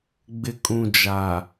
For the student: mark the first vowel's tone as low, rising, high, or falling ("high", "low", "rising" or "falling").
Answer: low